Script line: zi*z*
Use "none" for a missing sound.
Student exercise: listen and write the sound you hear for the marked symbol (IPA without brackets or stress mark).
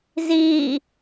none